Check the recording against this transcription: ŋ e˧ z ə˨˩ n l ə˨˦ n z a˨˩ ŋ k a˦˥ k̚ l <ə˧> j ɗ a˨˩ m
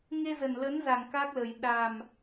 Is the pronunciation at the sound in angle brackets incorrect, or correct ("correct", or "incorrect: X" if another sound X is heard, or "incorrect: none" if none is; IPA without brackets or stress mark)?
incorrect: ə˨˩